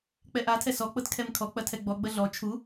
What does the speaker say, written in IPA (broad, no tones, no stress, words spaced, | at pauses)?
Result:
k͡pɛʔatʰɛ sɔk͡pɤt kʰɛmkʰɔk͡pɐ tʰɛɡ͡bɔɡ͡bɐ ɮɔ t͡ʃʰu